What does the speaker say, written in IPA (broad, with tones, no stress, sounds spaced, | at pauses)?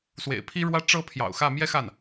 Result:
s w ḛ˨˩ ɪ̯ pʰ i˥ ɻ w ä˥ ʈ͡ʂ ɤ˥ pʰ j ɑ̰˨˩ ʊ̯ x ä˥˩ m j ɛ˥ x a˥˩ n